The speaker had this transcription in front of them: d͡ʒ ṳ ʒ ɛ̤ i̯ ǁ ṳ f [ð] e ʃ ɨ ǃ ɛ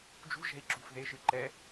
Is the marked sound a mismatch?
no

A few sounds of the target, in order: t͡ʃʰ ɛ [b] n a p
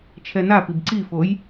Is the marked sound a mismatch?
yes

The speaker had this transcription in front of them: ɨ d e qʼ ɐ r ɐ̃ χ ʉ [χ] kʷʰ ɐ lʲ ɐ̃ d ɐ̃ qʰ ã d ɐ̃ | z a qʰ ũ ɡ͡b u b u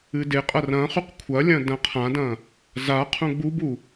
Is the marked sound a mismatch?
yes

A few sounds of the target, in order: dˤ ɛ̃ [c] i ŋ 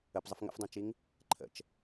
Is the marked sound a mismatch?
yes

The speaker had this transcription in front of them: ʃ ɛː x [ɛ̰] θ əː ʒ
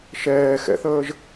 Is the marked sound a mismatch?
no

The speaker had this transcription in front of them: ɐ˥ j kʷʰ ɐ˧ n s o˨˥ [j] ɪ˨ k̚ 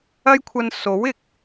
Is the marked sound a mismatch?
yes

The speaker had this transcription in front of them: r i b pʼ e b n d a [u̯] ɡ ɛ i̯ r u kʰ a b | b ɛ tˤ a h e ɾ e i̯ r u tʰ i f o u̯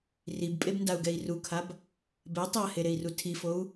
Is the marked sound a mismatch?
no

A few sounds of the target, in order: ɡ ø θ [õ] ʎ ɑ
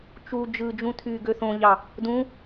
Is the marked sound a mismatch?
no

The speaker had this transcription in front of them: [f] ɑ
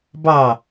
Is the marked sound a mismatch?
yes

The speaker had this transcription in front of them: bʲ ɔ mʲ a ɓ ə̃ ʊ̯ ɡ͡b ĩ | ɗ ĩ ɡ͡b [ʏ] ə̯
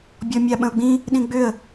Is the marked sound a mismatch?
no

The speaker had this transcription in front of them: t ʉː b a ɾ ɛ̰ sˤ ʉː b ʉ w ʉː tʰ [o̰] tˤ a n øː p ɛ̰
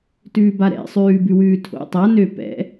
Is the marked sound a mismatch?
no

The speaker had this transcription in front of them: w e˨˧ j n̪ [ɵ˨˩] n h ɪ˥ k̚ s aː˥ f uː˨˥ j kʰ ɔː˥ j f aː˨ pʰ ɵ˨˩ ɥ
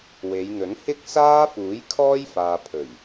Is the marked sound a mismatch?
yes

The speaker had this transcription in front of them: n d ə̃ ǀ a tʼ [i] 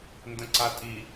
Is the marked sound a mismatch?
no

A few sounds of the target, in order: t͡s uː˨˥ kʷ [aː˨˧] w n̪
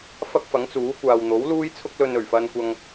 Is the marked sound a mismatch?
yes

